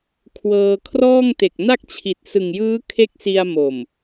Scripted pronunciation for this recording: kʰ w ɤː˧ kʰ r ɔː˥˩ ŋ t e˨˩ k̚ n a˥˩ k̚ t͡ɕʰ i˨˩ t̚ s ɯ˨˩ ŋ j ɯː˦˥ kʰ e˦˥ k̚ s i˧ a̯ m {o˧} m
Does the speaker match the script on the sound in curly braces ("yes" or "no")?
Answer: no